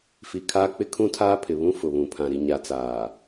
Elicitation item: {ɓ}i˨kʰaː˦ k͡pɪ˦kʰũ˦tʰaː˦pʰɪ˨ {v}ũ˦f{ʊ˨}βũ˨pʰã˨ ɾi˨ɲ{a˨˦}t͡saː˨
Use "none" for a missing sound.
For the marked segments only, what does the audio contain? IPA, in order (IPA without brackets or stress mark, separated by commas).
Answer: f, β, ʊ˨, a˨˦